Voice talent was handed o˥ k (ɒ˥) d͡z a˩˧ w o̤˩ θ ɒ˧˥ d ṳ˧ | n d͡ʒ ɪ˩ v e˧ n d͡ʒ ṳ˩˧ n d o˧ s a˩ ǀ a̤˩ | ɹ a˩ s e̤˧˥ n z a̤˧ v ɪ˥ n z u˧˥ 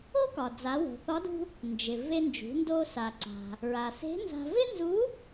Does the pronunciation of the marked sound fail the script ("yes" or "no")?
yes